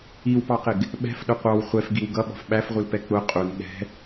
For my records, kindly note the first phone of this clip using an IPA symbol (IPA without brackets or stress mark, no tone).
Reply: i